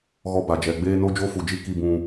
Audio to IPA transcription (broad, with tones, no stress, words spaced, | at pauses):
ɣɔ˦ba˨ d͡ʒɛ˨ɡ͡beː˦ no˦d͡ʒo˦fu˨d͡ʒi˦ ki˦bũ˦